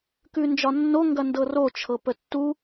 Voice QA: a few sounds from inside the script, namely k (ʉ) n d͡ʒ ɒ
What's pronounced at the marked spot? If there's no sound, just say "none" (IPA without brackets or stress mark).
ʉ